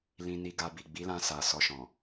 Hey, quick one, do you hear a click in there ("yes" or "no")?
no